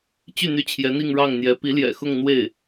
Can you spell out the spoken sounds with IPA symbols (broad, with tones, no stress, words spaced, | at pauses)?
t͡ɕy˥˩n̪y˧˥ t͡ɕʰjɛ˧˥n̪i˥˧ŋ ɻɑ˥˩ŋn̪jɛ˧˥ pi˧˥ljɛ̰˨˩xʊ˥˧ŋ n̪we˥˩ɪ̯